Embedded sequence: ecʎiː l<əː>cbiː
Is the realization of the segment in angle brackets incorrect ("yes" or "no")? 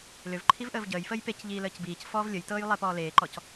no